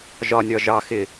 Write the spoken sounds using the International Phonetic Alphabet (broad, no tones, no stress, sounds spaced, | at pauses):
ʒ ɒ nʲ ɒ ʒ ɑ x ɪ